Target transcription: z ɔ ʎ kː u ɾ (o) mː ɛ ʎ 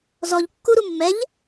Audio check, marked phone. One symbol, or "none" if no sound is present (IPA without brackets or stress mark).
u